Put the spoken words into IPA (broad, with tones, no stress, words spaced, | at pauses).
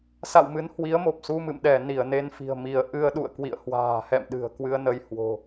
sa̰˧˨wmɨ˨˦n hwi˨˦ə̯mo˨˩p̚su˧mɨ̰˧˨m ɗɛ˧˩ ni˧˩ə̯ne˧nfi̤˨˩ə̯ mi˧˩ə̯ ʔɨ˧ə̯ɗṵ˧˨ə̯ kwḭ˧˨ə̯hwa̤ː˨˩hɛ̰˧˨m ɗɨ̤˨˩ə̯kwɨ˧ə̯nə˧j hwo̤˨˩